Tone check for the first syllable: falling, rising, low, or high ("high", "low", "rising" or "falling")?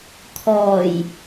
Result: low